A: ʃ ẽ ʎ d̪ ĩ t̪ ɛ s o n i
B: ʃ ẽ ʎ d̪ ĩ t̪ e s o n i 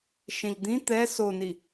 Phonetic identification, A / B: A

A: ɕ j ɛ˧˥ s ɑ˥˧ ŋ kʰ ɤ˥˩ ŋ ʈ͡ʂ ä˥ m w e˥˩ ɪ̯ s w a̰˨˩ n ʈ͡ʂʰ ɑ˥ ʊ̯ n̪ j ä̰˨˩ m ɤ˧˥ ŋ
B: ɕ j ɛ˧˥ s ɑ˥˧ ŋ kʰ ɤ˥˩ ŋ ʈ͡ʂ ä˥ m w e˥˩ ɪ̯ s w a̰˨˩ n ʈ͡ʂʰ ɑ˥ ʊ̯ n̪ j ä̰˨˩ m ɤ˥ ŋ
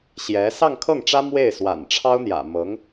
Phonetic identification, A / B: A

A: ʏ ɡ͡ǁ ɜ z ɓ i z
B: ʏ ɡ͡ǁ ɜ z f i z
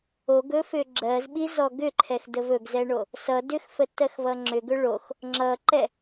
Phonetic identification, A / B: A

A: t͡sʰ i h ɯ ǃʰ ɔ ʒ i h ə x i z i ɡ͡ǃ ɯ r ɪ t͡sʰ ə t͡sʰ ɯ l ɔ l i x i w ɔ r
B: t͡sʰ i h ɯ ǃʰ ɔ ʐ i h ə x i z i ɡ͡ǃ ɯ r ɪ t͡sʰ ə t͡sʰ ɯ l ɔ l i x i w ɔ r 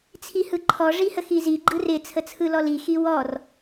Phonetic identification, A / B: B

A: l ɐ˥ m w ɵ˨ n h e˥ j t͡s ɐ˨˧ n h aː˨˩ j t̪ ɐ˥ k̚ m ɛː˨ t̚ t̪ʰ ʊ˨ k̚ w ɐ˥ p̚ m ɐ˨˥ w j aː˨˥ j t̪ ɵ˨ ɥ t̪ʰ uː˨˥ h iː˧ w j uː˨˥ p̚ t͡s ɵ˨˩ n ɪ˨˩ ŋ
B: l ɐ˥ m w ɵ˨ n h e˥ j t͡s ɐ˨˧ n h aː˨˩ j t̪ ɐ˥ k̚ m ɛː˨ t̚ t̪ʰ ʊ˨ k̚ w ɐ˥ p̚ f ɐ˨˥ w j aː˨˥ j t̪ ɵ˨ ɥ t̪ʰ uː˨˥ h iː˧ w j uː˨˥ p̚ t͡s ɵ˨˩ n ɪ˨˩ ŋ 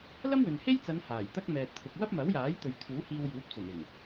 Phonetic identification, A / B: A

